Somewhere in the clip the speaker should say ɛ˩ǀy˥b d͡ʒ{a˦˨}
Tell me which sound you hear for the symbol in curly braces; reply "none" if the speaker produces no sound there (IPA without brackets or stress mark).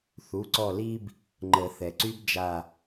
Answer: a˦˨